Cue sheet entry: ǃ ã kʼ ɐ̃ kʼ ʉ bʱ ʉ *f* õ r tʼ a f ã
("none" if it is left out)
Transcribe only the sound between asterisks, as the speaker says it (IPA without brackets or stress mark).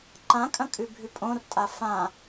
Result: pʼ